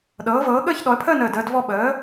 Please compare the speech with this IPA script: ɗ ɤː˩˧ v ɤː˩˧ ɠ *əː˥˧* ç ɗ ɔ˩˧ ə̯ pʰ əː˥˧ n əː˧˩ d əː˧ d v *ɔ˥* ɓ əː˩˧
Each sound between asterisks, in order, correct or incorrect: correct, incorrect: ɔ˧

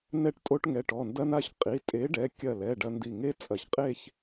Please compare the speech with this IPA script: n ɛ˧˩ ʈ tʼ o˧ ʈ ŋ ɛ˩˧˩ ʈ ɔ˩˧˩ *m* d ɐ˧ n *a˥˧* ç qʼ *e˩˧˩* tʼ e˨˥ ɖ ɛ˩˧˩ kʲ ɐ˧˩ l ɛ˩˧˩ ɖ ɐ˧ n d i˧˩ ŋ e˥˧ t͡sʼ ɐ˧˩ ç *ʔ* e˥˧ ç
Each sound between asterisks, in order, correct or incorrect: incorrect: n, incorrect: a˧, incorrect: i˩˧˩, incorrect: qʼ

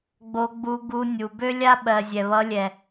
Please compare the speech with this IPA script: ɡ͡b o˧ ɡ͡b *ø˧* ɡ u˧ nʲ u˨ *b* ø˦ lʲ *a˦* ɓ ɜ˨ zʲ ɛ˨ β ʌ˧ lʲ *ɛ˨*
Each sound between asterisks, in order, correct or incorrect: incorrect: u˧, correct, correct, correct

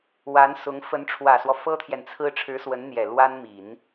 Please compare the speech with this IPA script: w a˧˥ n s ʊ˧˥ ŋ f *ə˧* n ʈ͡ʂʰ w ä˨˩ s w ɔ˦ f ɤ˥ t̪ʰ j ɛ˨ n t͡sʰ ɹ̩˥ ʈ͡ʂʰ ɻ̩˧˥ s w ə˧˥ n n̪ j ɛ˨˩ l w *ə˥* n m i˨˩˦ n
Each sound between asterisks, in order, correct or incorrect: incorrect: ə˧˥, incorrect: a˥

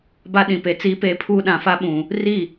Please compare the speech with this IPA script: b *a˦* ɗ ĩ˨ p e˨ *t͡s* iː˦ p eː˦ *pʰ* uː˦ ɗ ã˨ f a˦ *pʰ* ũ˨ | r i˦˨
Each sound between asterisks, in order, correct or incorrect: correct, correct, correct, incorrect: ɓ

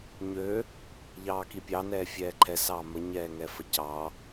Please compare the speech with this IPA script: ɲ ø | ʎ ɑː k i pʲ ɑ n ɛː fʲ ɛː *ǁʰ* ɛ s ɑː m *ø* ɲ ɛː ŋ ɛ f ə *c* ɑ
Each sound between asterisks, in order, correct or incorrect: incorrect: ǃʰ, incorrect: ə, correct

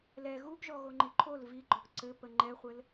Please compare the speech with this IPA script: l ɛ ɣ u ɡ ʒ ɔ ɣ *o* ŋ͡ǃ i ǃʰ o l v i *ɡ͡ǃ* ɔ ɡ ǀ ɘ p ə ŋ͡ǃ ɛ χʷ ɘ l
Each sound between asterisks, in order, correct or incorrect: correct, correct

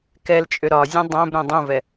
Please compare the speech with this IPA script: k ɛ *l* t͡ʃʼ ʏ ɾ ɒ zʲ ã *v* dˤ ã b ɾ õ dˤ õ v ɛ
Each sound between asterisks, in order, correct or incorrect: correct, incorrect: none

